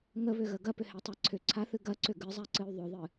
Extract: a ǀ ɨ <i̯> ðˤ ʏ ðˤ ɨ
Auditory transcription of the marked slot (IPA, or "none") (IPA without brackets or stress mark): y̯